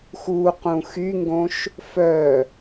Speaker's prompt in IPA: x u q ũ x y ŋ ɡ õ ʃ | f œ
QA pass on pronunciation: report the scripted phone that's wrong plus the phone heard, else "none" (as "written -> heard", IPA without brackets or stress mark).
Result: none